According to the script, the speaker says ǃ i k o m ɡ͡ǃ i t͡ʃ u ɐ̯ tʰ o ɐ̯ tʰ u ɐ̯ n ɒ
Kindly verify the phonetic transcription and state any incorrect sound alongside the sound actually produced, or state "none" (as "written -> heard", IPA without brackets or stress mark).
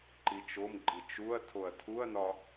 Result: k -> t͡ʃ